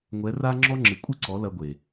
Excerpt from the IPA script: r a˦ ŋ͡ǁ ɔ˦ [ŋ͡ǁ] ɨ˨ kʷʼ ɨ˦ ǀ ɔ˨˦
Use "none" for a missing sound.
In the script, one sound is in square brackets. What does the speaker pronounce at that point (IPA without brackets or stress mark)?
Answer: ŋ͡ǁ